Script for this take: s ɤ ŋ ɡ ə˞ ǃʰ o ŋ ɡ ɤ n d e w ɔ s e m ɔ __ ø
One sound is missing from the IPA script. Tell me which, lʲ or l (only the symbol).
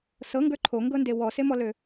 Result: l